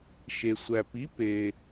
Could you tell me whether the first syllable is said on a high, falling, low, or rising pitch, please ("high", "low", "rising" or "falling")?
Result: low